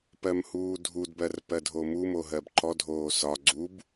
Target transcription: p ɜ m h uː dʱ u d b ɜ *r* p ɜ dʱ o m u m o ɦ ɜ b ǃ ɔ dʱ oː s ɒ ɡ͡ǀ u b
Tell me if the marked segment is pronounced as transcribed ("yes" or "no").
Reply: yes